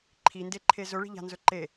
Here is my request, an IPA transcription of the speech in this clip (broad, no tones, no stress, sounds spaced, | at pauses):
ǃʰ i n d e ǃʰ e z ɵ ɭ i̤ ʎ a̤ n z ɵ ǃ e